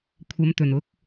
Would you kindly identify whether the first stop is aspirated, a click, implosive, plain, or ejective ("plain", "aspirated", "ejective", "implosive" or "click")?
aspirated